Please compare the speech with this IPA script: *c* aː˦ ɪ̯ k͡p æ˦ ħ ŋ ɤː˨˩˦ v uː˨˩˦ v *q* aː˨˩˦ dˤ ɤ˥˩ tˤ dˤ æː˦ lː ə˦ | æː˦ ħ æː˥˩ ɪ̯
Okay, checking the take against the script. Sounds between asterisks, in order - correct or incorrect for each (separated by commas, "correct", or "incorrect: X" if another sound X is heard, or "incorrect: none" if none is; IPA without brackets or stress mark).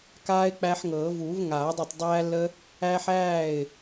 incorrect: k, incorrect: ŋ